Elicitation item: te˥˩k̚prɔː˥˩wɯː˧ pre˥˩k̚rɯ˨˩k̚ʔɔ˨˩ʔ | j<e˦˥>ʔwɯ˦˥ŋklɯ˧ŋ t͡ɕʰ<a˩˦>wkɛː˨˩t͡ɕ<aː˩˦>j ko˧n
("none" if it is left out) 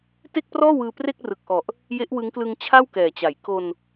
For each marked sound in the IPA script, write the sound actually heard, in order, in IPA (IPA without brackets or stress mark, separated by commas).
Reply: e˦˥, a˥˩, a˩˦